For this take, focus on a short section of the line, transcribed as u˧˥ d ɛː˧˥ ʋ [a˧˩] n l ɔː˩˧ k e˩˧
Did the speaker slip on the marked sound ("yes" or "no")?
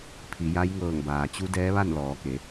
yes